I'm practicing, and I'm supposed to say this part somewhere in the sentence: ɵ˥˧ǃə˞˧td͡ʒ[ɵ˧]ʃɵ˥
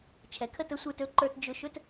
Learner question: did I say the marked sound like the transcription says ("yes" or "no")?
no